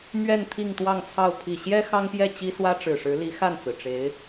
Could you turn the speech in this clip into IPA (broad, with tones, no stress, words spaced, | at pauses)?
mɥɛ˥˧n t̪ʰi˥˧ŋt̪wɑ˥˧ŋt͡sʰɑ˥˩ʊ̯ pʰi˨˩ɕjɛ˥ xɑ˥ŋpjɛ˥˩ t͡ɕi˥swä˥ʈ͡ʂɻ̩˨˩ʂɻ̩˧˥ li˧˥xa˥˩nt͡sɹ̩˩ʈ͡ʂe˧˥ɪ̯